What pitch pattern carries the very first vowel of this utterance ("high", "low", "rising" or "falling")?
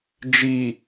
low